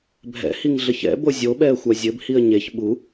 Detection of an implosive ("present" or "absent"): present